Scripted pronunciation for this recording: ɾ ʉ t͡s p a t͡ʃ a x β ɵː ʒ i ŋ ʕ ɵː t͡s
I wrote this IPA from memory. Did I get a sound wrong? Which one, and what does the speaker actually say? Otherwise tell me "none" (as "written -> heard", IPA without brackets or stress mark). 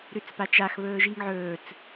none